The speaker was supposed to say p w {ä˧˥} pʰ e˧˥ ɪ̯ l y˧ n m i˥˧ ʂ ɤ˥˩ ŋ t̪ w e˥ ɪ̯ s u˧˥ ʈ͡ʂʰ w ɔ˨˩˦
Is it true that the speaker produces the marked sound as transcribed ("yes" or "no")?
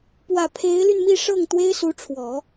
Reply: no